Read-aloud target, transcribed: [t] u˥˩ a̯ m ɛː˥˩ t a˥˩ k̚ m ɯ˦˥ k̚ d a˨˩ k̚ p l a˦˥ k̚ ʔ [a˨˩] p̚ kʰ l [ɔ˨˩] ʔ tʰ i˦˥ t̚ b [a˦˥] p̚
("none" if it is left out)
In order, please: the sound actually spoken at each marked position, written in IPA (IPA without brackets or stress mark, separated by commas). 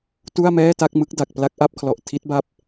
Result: t, a˥˩, ɔ˨˩, a˦˥